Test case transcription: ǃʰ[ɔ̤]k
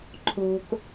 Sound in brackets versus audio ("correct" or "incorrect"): incorrect